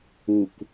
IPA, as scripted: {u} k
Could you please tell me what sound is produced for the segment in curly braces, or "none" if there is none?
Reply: u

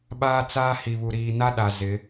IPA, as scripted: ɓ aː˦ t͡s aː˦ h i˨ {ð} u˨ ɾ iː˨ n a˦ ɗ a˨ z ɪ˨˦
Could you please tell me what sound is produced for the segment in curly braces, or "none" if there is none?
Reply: β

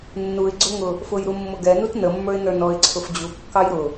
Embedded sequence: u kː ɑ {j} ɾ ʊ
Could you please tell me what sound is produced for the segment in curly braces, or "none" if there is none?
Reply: j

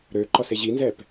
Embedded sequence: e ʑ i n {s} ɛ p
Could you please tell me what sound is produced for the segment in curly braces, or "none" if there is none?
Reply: z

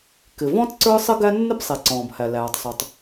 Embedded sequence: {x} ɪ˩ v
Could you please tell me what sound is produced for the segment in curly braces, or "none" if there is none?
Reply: k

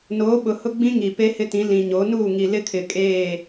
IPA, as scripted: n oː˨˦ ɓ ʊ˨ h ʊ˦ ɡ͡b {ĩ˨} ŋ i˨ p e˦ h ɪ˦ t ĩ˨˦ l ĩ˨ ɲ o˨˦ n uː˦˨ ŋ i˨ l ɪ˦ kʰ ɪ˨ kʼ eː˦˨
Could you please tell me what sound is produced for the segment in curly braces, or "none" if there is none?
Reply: ĩ˦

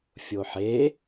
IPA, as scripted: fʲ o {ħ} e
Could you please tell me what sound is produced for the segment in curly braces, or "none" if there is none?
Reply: ħ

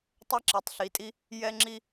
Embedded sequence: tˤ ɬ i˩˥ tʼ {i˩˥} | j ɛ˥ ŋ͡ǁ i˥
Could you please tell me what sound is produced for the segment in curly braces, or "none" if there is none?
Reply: i˥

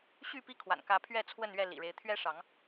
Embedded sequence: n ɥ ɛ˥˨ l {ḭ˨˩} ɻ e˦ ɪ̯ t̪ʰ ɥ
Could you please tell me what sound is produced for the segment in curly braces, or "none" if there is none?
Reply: ḭ˨˩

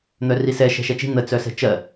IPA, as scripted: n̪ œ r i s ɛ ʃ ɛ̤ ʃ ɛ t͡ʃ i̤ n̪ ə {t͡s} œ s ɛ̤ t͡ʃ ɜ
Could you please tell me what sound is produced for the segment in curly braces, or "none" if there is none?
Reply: t͡s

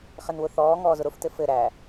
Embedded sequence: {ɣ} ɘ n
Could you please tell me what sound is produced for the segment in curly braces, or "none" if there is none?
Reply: χ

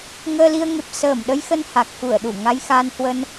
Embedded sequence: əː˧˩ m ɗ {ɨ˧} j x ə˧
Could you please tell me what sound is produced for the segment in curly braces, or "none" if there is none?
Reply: ə˧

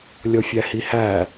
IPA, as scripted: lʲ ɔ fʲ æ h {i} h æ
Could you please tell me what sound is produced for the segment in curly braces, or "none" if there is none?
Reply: i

